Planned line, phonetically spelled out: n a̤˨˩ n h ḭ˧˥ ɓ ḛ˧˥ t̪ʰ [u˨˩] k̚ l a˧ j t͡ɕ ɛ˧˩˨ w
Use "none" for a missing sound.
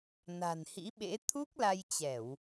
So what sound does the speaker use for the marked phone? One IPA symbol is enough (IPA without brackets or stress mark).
u˦˥